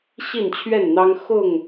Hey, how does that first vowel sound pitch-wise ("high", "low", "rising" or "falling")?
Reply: falling